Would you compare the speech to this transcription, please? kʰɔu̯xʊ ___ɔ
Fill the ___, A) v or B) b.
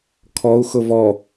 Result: A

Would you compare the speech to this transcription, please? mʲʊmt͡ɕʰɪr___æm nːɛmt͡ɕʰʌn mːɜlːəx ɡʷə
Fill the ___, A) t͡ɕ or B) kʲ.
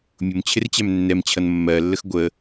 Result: A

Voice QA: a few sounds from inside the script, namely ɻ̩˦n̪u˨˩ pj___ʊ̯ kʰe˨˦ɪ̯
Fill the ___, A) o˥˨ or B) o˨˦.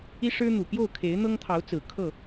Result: A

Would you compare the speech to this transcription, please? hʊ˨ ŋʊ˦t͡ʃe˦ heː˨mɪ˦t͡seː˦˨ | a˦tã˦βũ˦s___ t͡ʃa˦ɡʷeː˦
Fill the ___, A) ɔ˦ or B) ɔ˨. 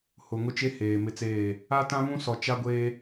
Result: B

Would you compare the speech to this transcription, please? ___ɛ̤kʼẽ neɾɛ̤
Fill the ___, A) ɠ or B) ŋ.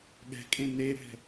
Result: A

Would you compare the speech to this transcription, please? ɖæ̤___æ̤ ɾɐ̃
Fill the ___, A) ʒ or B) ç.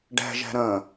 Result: A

